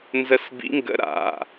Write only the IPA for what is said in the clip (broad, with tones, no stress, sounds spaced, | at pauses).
n z ə˦˥ s b ḭ˦˥ ŋ ɡ ə̰˦˥ ɾ a̰˩˧˩